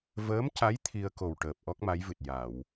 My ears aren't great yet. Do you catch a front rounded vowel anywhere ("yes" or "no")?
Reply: no